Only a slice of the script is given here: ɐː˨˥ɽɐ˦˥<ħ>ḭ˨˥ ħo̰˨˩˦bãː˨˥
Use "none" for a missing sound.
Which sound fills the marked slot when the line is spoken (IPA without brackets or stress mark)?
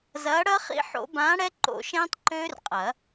χ